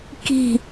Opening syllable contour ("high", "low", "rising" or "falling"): falling